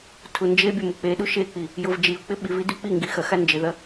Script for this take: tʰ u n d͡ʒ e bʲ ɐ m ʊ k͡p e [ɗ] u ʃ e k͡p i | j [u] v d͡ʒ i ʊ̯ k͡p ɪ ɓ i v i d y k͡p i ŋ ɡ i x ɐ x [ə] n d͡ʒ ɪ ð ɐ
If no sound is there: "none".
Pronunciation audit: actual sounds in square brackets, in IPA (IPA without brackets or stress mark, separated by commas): ɗ, ʊ, a